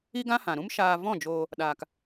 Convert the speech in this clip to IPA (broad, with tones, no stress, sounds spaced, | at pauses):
i˦ ɡ ã˦ h ã˨ ɾ ũ˦ m ʃ aː˧ v ɔ̃˦˨ d͡ʒ oː˧ | ɗ aː˧ k